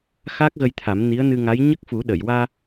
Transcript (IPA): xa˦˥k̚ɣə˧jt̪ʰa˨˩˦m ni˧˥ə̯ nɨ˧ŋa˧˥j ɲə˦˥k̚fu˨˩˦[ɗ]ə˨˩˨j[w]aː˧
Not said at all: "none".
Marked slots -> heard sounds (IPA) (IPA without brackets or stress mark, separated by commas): ɗ, w